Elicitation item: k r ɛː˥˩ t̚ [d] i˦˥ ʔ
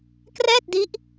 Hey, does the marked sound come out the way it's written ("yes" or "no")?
yes